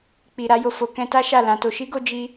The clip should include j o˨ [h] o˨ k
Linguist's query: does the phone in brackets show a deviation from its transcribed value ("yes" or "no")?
yes